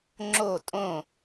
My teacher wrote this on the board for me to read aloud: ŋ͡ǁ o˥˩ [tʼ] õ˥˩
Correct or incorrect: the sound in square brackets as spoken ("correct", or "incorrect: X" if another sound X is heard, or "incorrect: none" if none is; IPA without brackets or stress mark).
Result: correct